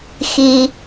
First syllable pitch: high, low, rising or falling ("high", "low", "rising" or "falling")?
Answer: low